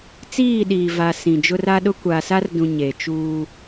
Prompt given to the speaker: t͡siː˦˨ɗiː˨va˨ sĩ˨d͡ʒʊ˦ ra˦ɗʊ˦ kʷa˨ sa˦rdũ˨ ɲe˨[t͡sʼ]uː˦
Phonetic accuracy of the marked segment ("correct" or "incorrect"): incorrect